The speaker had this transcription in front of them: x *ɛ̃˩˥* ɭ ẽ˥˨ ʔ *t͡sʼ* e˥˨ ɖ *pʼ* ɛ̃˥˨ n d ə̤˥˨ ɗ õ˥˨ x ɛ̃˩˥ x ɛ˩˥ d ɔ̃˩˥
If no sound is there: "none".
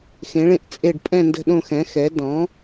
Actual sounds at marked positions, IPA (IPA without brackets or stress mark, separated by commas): ẽ˩˥, t͡sʼ, pʼ